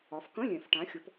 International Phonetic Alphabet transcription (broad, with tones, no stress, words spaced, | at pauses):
ɒ˨˦f kə̃˧˥˧ lʲɛ̃˨˩˦f ʈã˨˦xʲʊ˨˦p